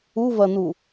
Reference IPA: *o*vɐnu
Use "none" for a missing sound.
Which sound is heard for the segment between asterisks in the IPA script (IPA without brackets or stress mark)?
u